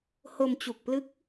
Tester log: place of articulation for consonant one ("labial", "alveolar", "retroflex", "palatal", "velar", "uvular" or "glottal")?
glottal